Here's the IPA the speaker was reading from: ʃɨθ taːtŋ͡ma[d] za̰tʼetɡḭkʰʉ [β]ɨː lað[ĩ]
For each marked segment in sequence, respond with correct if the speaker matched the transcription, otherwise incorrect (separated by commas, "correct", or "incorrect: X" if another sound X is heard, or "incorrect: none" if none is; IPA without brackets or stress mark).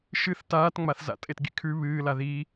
incorrect: θ, correct, incorrect: i